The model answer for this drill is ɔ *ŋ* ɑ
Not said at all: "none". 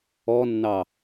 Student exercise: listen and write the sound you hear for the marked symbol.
nː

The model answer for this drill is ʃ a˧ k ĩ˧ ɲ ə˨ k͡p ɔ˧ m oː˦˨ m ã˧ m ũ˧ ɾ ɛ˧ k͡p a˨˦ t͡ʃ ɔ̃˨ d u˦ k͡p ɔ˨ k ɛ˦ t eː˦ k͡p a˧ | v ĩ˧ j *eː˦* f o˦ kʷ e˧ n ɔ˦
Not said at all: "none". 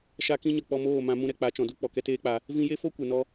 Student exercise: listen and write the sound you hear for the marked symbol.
e˦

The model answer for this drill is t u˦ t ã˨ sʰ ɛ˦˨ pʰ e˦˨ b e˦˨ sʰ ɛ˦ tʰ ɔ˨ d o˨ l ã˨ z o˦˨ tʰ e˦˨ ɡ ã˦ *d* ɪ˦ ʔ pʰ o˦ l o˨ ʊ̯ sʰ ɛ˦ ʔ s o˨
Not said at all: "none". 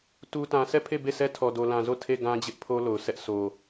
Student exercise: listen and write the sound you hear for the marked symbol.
d͡ʑ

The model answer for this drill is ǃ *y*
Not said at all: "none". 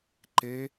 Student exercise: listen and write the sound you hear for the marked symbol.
e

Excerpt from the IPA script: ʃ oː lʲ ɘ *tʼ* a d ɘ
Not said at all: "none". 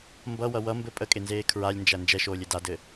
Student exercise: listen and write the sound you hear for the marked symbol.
d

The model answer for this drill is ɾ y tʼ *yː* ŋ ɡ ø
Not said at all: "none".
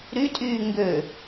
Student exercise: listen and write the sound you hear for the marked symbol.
yː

